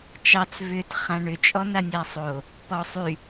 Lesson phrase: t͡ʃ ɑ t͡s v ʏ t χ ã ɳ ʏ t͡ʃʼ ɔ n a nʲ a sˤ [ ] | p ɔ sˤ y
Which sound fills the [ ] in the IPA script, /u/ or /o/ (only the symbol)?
o